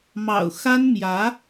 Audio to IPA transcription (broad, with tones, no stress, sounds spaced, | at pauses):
m ɑ̰˨˩ ʊ̯ x a˥ n m j ä˧˥